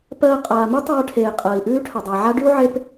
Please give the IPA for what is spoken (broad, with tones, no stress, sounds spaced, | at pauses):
p ɜː˨ qʼ aː˩ m ʉ˦ tˤ ʌː˨ ʈʰ eː˩ qʼ əː˩ i̯ ʔ ʉː˦ ʈʰ ə˩ dˤ əː˩ ʕ a˦ ɖ ʉ˥ u̯ ʕ e˦ p